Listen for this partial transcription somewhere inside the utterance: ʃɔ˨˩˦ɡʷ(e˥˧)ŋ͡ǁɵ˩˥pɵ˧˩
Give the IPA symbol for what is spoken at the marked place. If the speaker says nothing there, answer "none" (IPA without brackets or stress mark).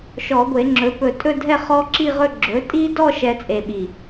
e˨˩˦